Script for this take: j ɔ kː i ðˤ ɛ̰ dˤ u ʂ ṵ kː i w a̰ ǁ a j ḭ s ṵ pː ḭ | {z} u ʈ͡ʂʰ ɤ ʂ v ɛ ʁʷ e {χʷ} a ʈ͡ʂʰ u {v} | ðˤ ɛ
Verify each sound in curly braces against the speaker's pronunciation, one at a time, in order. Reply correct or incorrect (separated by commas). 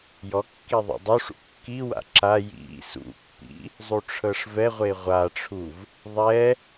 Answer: incorrect, incorrect, correct